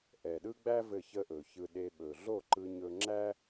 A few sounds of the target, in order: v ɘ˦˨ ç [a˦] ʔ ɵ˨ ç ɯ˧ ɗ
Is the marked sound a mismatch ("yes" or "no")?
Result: yes